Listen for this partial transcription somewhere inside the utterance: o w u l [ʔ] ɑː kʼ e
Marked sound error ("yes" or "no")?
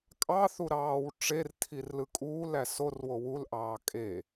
no